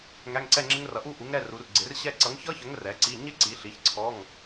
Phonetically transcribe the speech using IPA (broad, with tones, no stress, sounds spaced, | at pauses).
ŋ æ˧˥˧ ŋ ǀ ɛ˥˧ ŋ͡ǁ ɪ˦˥ ŋ r ʌ˨˥ ʔ u˥˧ ʔ u˨˥ ŋ ɾ ɛ˧˥˧ r u˨˥ r ɡ͡ǀ ɪ˨˥ r ɕ ɛ˥˧ ǀ ʌ˨˥ ŋ ç ʌ˦˥ ç ə˨˥ ŋ r ɛ˨˥ ǀ i˧˥˧ ɲ ɪ˥˧ ǀ i˨˥ ɬ i˨˥ ç ǀʰ ɔ˧˥˧ ŋ